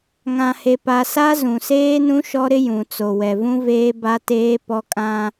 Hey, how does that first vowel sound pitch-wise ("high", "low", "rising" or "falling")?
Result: low